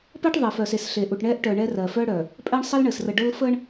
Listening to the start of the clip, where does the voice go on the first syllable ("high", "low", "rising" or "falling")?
high